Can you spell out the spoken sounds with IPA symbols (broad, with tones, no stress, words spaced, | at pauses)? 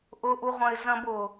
ʔʊ˧ʔu˧ʁʷɐ̃˧ɪ̯ zɐ̃˧bʊ˩